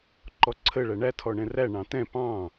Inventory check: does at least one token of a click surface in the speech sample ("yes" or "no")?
yes